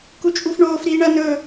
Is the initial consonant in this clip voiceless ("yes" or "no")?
yes